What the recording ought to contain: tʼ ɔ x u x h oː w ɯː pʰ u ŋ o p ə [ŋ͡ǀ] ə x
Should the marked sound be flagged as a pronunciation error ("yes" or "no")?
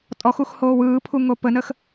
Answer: yes